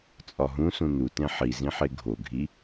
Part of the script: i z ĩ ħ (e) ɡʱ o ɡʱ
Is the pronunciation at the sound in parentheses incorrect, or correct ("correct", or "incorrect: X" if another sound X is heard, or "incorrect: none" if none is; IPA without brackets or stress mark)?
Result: correct